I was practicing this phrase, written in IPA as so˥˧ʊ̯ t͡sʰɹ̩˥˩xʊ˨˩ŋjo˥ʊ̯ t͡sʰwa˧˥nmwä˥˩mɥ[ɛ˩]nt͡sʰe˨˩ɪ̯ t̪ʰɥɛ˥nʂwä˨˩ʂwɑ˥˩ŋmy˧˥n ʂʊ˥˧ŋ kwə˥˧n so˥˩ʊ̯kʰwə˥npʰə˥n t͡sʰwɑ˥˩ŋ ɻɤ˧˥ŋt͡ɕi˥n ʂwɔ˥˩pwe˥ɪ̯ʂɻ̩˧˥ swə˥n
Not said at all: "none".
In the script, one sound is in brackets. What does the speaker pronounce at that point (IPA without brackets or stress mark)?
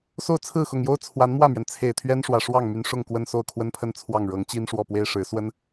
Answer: ɛ˩